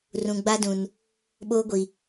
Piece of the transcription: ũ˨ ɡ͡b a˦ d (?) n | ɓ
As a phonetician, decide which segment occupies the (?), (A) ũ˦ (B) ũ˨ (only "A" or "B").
B